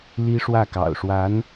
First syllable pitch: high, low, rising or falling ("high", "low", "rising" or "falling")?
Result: high